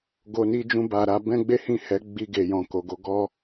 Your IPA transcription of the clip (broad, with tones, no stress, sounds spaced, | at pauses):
ɡ o˨ n i˧ d͡ʒ ũ˧ b a˨ ɾ a˧ b ɛ̃˦ ɡ͡b e˦ h ĩ˦˨ h ɛ˨˦ ɡ͡b i˧ ɡ e˨ j ɔ̃˨ k o˨ ɡ o˨˦ ɡ ɔ˦